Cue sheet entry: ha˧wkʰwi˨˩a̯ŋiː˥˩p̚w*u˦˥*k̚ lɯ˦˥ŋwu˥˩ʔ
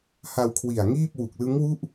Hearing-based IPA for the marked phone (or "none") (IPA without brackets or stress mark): u˨˩